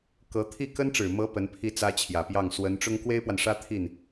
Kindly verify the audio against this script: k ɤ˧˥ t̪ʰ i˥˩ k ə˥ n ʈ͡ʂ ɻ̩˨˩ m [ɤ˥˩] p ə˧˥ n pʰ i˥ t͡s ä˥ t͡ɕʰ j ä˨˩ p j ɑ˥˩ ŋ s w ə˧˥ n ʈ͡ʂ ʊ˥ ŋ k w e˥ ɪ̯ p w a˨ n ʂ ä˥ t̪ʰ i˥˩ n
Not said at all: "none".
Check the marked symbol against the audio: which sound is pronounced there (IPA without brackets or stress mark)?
ɤ˧˥